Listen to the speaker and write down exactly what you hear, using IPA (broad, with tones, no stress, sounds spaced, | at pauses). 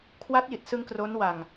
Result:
kʰ w a˦˥ t̚ j i˨˩ t̚ s ɯ˧ ŋ k r o˦˥ n w a˧ ŋ